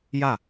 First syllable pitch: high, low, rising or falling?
falling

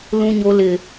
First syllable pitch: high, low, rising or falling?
high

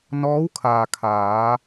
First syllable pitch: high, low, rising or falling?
rising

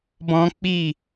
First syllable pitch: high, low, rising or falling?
high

